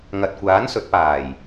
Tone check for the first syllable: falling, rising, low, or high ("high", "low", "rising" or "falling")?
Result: low